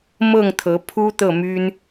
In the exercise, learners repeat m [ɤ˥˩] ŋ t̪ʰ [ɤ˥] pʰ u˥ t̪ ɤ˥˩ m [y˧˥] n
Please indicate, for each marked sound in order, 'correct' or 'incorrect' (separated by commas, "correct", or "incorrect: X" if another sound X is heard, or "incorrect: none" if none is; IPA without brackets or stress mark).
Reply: correct, incorrect: ɤ˧˥, incorrect: y˥